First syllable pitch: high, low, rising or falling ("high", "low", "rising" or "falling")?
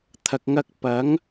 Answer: low